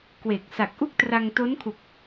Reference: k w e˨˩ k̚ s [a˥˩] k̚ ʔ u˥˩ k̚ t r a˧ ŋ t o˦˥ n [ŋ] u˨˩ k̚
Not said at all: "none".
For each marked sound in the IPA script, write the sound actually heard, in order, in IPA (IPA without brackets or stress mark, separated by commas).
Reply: a˨˩, kʰ